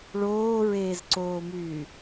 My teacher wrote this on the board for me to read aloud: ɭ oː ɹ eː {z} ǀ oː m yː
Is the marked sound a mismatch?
no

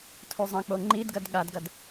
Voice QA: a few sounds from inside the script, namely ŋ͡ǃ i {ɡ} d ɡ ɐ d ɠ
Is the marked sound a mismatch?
yes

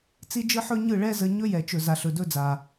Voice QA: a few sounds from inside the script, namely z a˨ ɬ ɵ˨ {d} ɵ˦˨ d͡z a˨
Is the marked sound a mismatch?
no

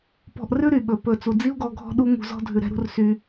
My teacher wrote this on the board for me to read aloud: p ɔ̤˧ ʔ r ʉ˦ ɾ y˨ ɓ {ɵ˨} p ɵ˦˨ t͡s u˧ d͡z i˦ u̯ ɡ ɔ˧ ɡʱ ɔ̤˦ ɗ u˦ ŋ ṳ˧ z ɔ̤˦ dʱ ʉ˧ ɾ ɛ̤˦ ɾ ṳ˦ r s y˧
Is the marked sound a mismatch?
no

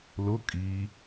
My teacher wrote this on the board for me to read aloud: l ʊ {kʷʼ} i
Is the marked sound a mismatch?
yes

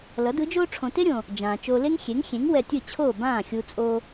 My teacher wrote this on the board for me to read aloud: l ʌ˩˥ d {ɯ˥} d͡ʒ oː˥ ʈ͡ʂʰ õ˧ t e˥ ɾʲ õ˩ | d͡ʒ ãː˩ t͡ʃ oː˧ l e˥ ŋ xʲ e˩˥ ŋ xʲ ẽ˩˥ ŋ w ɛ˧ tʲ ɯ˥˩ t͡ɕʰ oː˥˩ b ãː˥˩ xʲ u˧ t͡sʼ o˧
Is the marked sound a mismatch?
yes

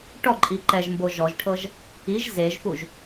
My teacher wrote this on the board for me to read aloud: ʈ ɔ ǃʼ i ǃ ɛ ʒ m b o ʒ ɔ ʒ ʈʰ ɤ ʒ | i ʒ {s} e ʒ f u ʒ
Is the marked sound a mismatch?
yes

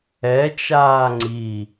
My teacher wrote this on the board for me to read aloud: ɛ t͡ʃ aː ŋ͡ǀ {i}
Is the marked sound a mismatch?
no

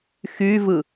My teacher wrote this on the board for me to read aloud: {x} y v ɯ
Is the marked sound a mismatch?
no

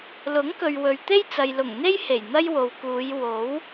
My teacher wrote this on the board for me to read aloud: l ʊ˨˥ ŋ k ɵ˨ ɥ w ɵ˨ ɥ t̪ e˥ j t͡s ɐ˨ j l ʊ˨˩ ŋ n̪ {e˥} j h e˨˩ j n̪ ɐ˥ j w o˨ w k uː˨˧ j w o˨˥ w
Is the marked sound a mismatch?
no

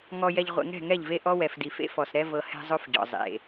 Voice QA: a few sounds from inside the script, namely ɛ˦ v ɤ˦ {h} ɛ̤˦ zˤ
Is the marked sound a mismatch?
no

